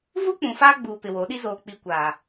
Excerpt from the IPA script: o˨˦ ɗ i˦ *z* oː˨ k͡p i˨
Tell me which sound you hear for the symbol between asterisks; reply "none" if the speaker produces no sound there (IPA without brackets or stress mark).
z